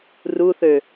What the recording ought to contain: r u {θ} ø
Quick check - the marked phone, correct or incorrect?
correct